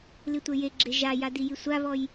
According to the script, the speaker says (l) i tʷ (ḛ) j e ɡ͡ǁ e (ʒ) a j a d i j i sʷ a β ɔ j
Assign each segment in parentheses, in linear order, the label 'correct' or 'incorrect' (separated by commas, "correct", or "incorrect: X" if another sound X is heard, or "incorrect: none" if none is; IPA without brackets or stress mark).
correct, incorrect: e, correct